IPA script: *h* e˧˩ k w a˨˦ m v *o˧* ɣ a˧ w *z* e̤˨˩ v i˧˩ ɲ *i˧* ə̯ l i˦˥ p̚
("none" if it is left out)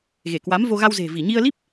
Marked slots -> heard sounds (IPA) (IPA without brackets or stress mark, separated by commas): ɣ, o˧, z, i˧